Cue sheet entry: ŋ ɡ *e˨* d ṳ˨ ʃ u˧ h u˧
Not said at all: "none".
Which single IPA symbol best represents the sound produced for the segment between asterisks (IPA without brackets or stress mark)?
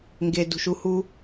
e˨